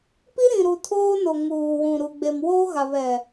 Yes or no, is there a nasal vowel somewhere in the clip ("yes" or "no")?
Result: yes